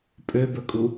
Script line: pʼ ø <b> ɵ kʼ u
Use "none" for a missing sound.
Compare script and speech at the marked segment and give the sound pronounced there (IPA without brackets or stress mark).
b